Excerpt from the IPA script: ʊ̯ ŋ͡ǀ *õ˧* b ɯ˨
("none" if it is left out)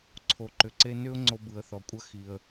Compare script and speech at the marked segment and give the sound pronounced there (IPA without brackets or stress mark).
o˧